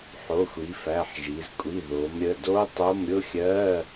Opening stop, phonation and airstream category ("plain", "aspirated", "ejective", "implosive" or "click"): ejective